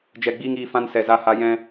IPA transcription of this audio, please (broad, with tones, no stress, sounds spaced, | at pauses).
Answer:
d͡ʒ ɛ˨ ɡ͡b iː˧ ŋ iː˨ f ã˧ n s ɛ˨ z a˧ h a˧ j ɛ̃˧